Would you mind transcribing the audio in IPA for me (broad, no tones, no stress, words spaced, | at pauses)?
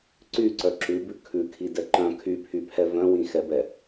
ǀyǀœ ǁʉbʉ kʰʉkʰidɛ ǃœ̃ kʰypʰypʰɛ vœ̃wĩxɛbɛ